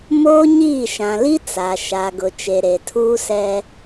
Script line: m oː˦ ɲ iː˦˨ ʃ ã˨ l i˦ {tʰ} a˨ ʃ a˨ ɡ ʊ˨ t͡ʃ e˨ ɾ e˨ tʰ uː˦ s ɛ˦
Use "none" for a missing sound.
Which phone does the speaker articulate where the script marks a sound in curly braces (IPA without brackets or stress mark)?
t͡s